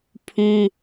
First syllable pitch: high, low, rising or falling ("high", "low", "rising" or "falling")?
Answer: high